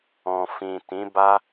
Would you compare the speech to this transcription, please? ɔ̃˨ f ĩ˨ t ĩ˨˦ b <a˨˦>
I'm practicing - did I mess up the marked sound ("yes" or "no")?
yes